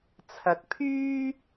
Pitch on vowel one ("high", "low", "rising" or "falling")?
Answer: rising